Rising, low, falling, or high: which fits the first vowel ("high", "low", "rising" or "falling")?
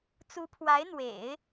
rising